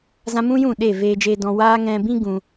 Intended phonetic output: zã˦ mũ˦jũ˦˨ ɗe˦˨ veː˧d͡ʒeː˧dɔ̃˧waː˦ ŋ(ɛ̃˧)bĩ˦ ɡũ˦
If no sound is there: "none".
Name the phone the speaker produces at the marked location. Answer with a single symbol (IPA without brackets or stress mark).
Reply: ɛ̃˧